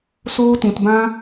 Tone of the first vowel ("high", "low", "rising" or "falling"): high